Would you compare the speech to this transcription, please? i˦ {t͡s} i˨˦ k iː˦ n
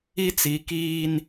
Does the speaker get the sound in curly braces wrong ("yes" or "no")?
no